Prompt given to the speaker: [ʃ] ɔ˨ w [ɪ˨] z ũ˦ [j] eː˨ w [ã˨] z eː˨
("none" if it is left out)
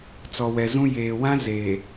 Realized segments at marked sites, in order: t͡s, ɛ˨, j, ã˦

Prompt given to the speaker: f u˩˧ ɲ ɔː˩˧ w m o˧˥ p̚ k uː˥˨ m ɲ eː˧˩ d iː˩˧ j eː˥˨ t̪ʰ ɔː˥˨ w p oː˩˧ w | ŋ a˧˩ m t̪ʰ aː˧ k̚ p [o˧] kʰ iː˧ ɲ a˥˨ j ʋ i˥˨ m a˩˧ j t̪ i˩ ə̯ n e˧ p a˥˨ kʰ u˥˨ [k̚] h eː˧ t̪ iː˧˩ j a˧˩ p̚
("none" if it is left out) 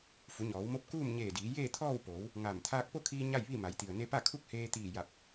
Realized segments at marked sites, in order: o˥˨, k̚

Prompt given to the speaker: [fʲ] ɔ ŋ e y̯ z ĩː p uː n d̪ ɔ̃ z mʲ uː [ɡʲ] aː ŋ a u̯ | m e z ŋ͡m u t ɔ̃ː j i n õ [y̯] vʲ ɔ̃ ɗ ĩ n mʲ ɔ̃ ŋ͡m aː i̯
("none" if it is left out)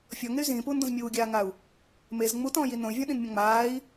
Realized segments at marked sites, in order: fʲ, ɡʲ, y̯

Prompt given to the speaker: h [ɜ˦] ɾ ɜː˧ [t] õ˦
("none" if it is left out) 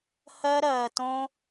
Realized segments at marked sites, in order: ɜ˦, t

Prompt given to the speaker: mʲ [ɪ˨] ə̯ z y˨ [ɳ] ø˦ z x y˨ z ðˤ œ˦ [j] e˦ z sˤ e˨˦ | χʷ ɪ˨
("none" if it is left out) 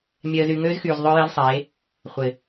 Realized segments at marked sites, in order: ɛ˨, ŋ, j

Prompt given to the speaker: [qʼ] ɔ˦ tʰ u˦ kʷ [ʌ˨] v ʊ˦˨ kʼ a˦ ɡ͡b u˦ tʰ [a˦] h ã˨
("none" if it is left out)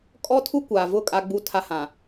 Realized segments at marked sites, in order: kʼ, a˨, a˦

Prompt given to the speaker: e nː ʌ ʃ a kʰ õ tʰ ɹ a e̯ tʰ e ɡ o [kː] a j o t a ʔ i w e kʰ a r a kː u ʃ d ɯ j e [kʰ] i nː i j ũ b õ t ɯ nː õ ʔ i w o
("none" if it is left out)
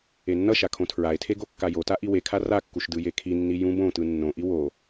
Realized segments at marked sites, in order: kː, kʰ

